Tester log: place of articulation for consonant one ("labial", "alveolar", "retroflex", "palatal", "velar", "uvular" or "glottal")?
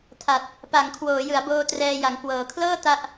alveolar